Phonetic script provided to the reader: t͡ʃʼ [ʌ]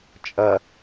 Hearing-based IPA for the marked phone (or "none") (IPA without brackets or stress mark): ʌ